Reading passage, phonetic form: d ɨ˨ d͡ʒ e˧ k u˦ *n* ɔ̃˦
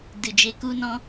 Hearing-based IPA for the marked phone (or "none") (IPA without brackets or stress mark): n